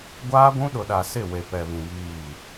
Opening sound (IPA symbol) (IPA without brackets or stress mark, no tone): ɡʷ